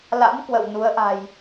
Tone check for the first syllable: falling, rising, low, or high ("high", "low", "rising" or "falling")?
rising